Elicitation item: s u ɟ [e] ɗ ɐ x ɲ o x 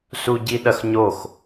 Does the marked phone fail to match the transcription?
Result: yes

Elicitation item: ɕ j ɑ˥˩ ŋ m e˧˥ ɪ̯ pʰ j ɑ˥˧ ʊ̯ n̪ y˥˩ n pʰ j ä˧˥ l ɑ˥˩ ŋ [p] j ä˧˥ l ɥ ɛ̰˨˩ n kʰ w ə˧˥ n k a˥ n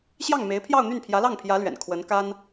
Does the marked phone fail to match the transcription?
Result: yes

